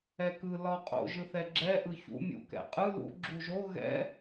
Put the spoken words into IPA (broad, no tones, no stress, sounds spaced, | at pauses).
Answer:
ɛ k ɯ l ɒ qʼ o̰ ʒ ɯ θ ɛ ɡ͡ǁ ɛ ʔ ɯ ç ṵ mʲ ṵ k ɛ̰ qʼ ɯ l ṵ ɡ͡ǁ u ʒ o ɣ ɛ̰